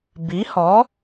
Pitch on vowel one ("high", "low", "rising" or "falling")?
rising